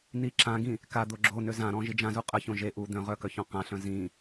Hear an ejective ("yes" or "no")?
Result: yes